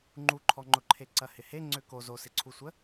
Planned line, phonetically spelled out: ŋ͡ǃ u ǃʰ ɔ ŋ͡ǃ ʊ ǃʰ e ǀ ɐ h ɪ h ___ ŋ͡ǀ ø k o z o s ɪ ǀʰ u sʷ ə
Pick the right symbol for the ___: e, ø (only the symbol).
e